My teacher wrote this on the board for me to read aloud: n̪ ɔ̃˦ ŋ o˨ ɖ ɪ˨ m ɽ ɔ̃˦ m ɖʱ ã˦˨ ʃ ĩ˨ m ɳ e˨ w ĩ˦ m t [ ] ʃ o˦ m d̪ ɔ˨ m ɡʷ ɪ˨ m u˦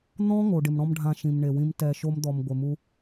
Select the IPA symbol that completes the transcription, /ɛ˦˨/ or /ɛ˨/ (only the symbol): ɛ˦˨